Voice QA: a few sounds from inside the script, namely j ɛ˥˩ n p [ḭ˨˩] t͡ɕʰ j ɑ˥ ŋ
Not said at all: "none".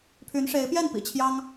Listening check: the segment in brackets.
ḭ˨˩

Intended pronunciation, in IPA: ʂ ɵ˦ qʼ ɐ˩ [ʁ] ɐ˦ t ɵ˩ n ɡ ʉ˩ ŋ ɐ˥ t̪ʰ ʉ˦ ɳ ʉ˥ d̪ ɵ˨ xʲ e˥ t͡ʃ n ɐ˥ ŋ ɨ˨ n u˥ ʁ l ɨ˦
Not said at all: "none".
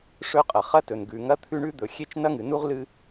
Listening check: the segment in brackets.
χ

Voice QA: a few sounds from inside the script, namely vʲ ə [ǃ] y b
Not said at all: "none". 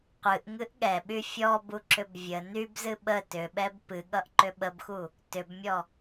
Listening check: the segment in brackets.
n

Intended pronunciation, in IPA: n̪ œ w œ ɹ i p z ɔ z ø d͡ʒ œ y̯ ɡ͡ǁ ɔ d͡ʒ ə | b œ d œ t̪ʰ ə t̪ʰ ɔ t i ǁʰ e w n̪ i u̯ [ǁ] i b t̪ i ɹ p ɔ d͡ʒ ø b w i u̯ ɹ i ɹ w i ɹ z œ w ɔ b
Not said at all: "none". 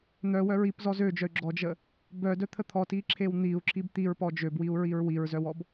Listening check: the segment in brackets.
ǁ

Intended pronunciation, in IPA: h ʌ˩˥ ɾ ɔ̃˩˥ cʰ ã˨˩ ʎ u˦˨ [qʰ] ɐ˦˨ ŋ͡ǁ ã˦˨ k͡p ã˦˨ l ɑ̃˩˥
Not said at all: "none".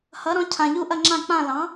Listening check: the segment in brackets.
ʔ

